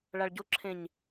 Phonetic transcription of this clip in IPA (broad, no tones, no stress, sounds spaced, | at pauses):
ɭ a ɭ ɟ o ǁʰ ẽ ɲ